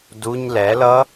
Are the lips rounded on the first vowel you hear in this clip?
yes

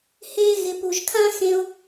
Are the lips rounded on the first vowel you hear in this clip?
no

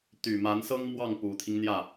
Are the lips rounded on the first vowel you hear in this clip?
yes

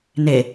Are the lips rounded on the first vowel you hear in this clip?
no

